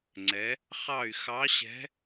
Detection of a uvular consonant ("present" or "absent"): present